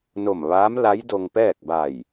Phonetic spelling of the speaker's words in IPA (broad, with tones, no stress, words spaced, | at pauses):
no˧˩m ʋaː˧˥mla˧˥j do˧ŋpɛː˥˨k̚ ba˧˩j